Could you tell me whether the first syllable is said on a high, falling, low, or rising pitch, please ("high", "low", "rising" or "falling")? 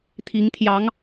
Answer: rising